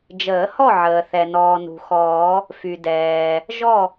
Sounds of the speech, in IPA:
d͡ʒ əː˨˩˦ h ɔ˥˨ ʕ əː˩ θ ɛ˩ n ɔː˩ n ṳ˩ x ɔː˨˩˦ | f y˩ d ɛː˩ | ʒ ɔ˥˨

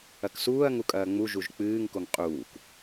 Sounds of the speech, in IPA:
ɐ k s uː ɐ̯ ŋ u kʼ ɐː ŋ͡m u ʒ u ʒ k͡p ɨː ŋ k o ŋ qʼ uː k

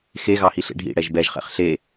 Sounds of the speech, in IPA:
x e ɣ ɑ h i ɬ ḛ ɖʱ ḭ ɽ ɛ ʒ b ɛ ʒ χ ɛ̰ χ ɬ e

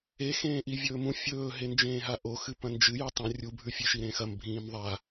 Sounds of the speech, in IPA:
e x ẽː ʔ i vʲ ɵː m ũ fʲ ɵː ɦ e n d͡ʒ ẽː ɦ a ʔ o x ɨ p ɐ̃ n d͡ʒ ɨ j ʉ tˤ ɐ̃ rʲ u bʱ ʉ fʲ e ʃ i ɾ ẽ x ɐ m bʱ ĩː m ðˤ a

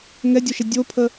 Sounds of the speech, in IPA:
ŋ ɛ dʲ o ʃ ɛ dʲ o pʰ ə

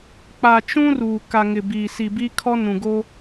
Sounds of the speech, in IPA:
k͡p a˨ t͡ʃ ũ˦ r uː˨ k a˨ ŋ ɪ˨ b iː˨ s i˨ b i˦ kʰ ɔ˦ n ũ˨ ɡ o˦

